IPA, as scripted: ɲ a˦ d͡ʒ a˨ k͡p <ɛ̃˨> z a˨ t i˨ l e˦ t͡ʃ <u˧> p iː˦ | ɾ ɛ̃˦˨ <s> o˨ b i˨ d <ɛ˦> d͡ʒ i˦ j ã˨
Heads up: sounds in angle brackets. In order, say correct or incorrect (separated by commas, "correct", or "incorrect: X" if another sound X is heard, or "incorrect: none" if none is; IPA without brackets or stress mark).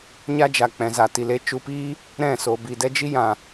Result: correct, correct, correct, correct